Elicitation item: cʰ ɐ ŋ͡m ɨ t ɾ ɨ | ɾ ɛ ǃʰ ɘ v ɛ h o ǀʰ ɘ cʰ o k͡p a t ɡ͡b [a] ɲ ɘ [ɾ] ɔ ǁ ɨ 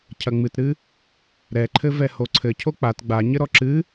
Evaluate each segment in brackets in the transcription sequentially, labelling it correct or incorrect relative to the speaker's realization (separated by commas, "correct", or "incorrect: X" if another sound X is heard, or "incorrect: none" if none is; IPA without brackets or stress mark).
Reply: correct, correct